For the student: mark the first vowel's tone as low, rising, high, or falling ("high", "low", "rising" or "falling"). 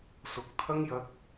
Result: rising